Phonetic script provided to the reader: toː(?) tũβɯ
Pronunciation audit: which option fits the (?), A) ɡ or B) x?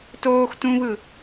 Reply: B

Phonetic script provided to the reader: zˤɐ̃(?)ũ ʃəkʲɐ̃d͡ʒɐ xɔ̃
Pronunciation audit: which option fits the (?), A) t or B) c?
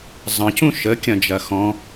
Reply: B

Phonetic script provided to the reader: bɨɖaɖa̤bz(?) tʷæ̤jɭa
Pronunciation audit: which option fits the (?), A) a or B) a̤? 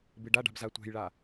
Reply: A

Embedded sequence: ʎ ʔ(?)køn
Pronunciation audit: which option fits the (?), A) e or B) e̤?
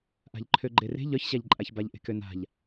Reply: B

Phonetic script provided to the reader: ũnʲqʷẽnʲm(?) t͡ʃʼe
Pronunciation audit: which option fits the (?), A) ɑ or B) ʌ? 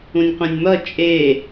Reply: B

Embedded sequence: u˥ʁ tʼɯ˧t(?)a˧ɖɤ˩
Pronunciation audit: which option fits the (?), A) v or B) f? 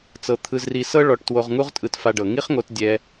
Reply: B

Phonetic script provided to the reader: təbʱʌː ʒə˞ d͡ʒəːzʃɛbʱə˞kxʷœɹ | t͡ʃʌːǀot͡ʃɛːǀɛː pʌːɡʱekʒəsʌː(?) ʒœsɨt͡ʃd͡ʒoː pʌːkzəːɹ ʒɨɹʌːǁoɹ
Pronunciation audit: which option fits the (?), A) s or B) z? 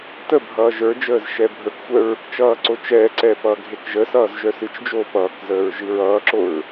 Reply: B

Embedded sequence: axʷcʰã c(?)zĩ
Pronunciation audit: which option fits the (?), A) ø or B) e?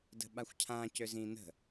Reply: A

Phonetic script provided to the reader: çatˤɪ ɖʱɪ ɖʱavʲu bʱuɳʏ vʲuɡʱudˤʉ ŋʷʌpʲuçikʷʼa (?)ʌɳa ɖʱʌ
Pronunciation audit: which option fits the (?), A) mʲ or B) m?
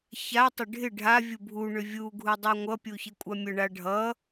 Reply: A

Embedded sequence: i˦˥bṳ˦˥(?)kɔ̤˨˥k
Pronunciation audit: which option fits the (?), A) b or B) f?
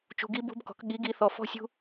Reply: A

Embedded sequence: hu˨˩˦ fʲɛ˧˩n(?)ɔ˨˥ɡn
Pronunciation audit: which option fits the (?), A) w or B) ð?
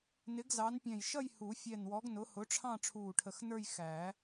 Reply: A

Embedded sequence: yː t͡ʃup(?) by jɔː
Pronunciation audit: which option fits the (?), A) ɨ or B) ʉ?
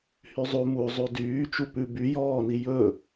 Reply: B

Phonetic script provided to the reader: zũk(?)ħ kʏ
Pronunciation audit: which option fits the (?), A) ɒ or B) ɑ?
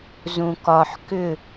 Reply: A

